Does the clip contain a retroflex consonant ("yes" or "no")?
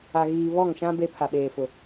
no